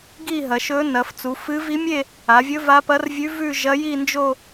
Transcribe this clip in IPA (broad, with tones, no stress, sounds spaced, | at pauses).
ɡ i˥˧ ɦ ɐ˩˧ ʃ ɵ˧˥ n ɐ˩˧ f t͡s u˩˧ f ɨ˧˥ v i˧˥ mʲ e˥˧ | a˩˧ vʲ ɵ˧˥ v a˧˥ p ɐ˧˥ r vʲ ʉ˧˥ v ʉ˥˧ ʒ ɐ˧˥ j i˥˧ n d͡ʒ o˥˧